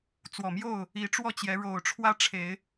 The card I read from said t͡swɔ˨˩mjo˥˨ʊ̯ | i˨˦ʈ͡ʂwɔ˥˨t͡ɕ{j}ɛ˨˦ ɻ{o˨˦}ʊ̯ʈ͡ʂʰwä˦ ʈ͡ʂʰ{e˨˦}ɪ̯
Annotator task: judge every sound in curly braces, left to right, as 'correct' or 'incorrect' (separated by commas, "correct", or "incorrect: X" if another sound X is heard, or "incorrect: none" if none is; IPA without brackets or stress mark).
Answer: correct, incorrect: o˨˩, correct